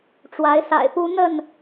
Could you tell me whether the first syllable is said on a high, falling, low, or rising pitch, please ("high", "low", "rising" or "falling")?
rising